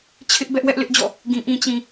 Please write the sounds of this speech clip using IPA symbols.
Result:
t͡ɕʰ ɪ˦ ʔ b ɛ˦ ʔ w ɛ˦ ʔ l ɪ˦ ʔ d͡ʑ ɔ̰˦˨ | ɡ ĩ˨ ʔ ĩ˨ t͡ɕ ĩ˨

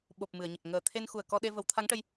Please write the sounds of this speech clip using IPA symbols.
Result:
ɓ o˨˩ p̚ m ɨ˨˩˨ ə̯ ɲ ə˨˩ k̚ ŋ əː˨˩ t̪ʰ e˧ n x u˨˩ ə̯ k ɔ˧ ɗ e˧ v ə˨˩˦ w t̪ʰ a˧˥ ŋ ʈ ə˧ j

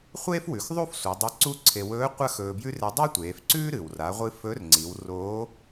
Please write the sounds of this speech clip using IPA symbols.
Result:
χʷ eː˥ f w ʉ˩˧ x ðˤ u˥ f sʷ e˩˧ dˤ ɨ˧˥ ǀ u˥ ǀʰ e˧ w ɵː˧˥ qʷ ɐ˥ x ɵː˧ b j ʉ˥ r e˧˥ dˤ a˥ tʷ eː˩˧ f ǀ ʉː˥ ɾ ɨ˩ w r a˩˧ ʁʷ ɨ˧ f ɵ˧˥ r ŋ͡ǀ i˩˧ w r oː˧˥

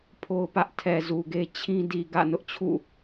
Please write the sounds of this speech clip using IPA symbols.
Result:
pʰ o˦ ʊ̯ p ä˦ ʔ tʰ ɛ˨ z u˨ ɡ e˦ t͡ɕʰ ĩ˦ d i˨ ɡ ä̰˦˨ n ʊ˦ ʔ t͡ɕʰ ṵ˦˨

